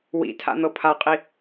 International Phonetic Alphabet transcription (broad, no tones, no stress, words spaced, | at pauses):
wḭ tʰa̰n̪ɤpʰaqʼi